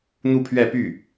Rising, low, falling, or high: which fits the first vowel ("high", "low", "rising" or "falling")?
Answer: falling